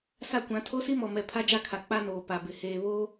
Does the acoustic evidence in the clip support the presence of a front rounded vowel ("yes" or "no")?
no